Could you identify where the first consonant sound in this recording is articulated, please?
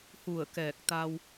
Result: glottal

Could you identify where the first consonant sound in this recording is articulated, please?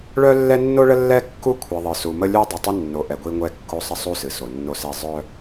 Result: retroflex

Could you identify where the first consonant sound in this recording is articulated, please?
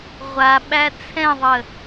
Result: uvular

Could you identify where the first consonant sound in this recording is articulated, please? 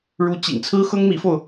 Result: retroflex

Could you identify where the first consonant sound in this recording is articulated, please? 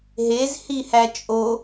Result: glottal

